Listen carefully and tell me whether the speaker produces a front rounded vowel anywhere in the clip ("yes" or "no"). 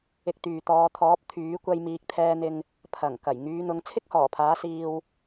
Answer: yes